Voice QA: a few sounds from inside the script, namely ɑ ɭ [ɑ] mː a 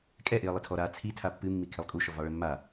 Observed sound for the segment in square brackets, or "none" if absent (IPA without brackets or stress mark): ə